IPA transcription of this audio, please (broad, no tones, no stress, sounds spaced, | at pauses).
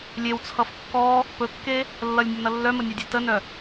lʲ e w t͡sʰ ʌ f kː ɔ | p ɵ kː e | lː ʌ lʲ nʲ ʌ n ʌ lː œ m ə nʲ œ dʲ e t ə n œ